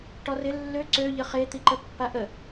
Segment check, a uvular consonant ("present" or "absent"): present